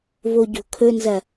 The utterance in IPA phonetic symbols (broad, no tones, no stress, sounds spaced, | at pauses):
v o ɟ o̤ kʰ ɵ n z ɐ